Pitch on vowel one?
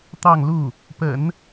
falling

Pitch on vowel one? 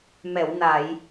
low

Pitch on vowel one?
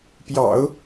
low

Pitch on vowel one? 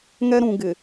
high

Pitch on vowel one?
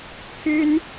high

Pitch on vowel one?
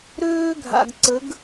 high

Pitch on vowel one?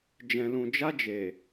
low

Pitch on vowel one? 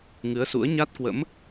rising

